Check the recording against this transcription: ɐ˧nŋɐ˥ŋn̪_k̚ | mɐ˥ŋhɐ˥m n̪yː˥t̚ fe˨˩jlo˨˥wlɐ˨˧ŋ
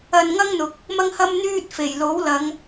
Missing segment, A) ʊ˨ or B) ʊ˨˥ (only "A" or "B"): A